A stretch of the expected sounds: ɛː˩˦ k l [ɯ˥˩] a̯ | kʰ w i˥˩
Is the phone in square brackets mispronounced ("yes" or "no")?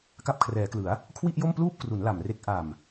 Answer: yes